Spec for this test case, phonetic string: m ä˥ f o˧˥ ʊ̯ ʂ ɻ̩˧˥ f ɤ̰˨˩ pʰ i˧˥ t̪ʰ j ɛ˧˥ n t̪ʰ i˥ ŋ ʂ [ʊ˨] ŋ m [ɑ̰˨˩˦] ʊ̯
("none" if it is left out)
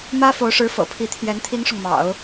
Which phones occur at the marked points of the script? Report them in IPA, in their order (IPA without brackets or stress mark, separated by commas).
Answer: ʊ˨, ɑ̰˨˩˦